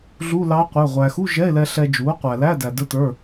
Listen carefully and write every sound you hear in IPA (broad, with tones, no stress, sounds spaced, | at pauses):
ɮ u˧˥˧ l ɑ˧˥ qʷ ə˞˩˧˩ ʁʷ æ˩ x u˧˥˧ ʒ ɛ˧˥˧ e̯ l ɛ˧ ɬ ɛ˧ d͡ʒ u˩˥ o̯ qʷ æ˩ l æ˧˥˧ d æ˩ d ə˞˧ t ə˞˩˧˩